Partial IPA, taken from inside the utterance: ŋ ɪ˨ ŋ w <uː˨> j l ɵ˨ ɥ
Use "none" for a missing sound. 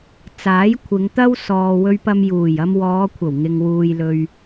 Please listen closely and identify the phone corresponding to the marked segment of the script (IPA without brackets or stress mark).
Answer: uː˨